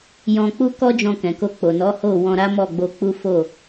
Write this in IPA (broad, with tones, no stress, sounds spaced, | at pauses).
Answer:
j ɔ̃˧ k͡p u˦ k ɔ˦ d͡ʒ ɔ̃˧ k ɛ̃˨ k o˧ k͡p o˨ n ɔ˨˦ h o˦˨ w ɔ̃˧ ɾ a˦ m ɔ˦˨ ɡ͡b o˧ k͡p u˦ f o˦˨